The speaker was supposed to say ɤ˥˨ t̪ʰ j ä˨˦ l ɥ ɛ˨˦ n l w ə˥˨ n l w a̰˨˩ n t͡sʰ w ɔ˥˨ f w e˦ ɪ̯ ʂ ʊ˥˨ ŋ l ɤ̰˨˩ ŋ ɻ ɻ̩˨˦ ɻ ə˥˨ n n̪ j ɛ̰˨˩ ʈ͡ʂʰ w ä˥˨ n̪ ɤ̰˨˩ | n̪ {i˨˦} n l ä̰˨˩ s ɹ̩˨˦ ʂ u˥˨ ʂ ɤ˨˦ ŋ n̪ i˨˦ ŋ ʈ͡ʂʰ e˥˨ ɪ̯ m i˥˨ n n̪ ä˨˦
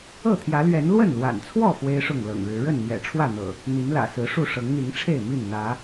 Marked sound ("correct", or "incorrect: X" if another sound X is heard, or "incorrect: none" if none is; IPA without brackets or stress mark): correct